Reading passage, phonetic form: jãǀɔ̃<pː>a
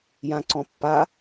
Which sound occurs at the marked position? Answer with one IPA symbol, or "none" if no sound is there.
pː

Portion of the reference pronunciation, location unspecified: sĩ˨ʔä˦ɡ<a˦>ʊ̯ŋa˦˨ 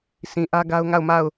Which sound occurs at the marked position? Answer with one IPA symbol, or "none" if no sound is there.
a˦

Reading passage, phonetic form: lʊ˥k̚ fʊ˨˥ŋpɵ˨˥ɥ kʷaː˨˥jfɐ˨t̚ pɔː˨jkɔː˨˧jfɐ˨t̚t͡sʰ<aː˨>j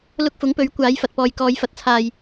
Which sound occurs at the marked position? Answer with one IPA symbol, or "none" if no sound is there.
aː˨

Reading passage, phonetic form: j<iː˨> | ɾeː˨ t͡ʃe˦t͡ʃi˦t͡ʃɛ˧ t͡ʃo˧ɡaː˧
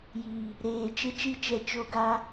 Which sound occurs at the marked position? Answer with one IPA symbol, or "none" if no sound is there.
iː˨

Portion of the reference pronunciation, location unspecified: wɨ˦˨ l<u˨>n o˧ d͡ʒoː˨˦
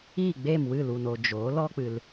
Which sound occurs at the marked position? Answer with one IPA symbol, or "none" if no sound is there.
u˨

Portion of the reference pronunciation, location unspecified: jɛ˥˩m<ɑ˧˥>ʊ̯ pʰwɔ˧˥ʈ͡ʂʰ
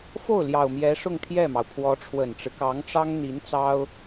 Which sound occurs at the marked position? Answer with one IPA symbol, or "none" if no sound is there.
ɑ˩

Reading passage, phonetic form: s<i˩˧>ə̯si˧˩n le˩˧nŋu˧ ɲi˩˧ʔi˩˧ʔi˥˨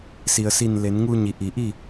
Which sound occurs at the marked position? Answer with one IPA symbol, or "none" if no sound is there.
i˩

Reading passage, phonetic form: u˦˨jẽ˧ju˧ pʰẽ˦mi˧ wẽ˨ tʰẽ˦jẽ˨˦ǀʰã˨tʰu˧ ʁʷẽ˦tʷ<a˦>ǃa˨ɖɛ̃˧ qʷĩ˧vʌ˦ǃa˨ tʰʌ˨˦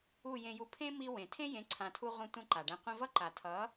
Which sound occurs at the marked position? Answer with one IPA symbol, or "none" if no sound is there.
ã˦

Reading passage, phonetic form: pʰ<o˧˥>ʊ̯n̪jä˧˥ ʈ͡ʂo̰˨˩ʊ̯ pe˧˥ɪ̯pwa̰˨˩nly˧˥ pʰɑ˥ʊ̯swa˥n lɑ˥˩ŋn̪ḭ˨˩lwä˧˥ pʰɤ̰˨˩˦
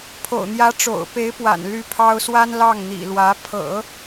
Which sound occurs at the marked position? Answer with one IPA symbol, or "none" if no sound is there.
o̰˨˩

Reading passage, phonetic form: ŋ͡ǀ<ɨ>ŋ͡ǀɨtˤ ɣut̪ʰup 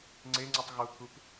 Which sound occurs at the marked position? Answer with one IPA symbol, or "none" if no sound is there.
e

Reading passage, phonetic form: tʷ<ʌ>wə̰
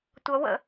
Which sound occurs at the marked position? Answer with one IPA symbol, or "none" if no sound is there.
ʌ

